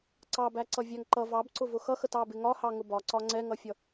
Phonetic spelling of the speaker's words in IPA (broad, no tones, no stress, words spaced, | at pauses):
ǀɑbæ ǀʌvʲæŋǃʌ vɑbǀʊvʊ xʌxət ɑbɪŋɒhɑ ŋʊbɒǀɒ ŋ͡ǀɛŋʌfʲʌ